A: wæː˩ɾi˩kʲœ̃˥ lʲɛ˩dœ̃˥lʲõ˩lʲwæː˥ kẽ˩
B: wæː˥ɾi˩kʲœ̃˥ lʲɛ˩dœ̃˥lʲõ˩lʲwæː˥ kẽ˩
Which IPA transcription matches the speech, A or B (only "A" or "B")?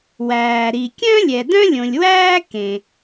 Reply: A